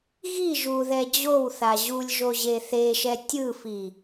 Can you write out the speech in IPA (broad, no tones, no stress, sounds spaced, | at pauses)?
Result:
ɣ i ʒ u ð ɛ d͡ʑ o w θ a ʑ u lʲ ʒ o ʑ e θ e ʃ ɛ tʲ ɯ f i